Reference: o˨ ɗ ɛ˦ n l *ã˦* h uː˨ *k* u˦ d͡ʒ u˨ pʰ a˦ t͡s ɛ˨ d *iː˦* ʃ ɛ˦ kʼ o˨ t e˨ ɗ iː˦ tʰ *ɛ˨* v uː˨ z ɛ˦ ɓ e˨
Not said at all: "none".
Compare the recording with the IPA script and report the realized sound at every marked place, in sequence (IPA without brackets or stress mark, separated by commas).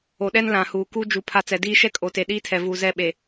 ã˨, k, iː˦, ɛ˨